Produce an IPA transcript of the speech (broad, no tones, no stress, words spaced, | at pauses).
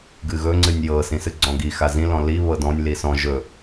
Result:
ɡɨɣɵ ŋ͡ǀɨnʲjɤ sĩsɨɡ͡ǀɔ̃ɡi xazĩ lɔ̃li βɤdɔ̃nʲ lisɔ̃ ʒɵ